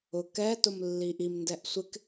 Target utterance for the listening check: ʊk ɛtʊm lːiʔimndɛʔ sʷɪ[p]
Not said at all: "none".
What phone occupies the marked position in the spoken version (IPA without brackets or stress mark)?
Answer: k